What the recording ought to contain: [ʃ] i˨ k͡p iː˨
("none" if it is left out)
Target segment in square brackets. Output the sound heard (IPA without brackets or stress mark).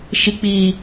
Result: ʃ